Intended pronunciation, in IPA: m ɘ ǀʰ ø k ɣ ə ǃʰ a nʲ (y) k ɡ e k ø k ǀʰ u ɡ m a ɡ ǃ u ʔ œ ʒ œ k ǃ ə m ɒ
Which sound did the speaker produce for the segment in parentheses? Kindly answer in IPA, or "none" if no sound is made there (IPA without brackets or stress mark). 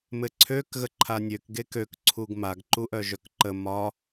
ø